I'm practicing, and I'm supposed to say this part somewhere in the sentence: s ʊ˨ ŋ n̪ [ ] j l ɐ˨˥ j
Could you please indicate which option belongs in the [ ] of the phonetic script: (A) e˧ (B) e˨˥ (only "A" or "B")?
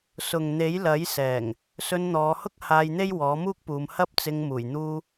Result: B